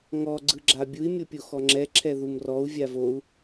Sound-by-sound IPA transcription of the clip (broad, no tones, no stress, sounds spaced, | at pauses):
ŋ ɔ ɡ͡ǀ ɯ ɡ͡ǁ a bʲ u i̯ mʲ ɤ pʲ o x ɔ ŋ͡ǁ ɛ ǁʰ ɛ ð u m r ɔ u̯ vʲ a v o u̯